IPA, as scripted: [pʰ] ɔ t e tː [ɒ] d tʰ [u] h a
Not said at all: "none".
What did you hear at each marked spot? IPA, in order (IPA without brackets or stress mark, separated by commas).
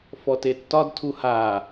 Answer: f, ɒ, u